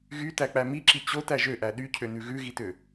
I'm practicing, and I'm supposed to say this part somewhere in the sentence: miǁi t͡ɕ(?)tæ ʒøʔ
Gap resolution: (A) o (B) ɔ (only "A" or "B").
A